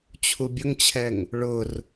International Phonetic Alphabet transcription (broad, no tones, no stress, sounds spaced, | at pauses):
t͡ɕʰ u bʲ ʊ ŋ t͡ɕʰ ɛ ŋ | ɭ ʊ r